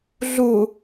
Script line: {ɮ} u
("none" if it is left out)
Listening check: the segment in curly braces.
ɮ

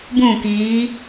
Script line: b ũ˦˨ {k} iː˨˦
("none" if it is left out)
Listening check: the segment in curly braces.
k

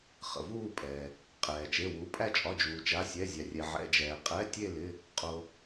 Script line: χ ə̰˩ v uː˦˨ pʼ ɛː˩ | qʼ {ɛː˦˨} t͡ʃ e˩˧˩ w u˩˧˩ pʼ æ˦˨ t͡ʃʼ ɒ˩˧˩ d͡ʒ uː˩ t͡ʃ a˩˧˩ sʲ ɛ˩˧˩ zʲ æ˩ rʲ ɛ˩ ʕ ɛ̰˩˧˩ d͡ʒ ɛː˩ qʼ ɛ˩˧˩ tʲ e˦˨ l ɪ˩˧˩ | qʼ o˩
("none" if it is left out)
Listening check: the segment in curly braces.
ɛː˩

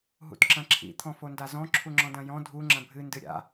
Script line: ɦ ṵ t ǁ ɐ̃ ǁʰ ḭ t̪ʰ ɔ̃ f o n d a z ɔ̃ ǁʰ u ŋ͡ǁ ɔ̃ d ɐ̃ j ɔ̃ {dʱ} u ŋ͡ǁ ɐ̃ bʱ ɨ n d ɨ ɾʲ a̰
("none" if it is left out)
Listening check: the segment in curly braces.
dʱ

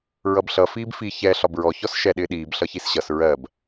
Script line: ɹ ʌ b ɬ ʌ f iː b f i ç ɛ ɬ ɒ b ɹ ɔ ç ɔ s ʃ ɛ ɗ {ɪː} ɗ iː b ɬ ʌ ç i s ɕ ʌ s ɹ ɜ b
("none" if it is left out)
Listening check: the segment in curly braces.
ɪː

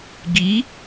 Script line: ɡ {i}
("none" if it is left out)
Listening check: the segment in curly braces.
i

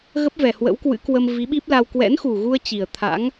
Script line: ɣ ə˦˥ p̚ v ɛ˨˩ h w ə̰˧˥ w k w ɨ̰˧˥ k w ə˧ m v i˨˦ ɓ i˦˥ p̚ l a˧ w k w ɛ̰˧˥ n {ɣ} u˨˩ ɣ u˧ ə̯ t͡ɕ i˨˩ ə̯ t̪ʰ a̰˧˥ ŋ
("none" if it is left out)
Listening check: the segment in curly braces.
x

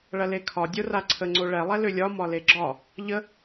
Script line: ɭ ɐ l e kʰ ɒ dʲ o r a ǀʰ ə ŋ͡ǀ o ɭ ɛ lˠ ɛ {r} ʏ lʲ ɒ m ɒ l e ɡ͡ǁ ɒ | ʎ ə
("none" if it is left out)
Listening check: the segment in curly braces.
l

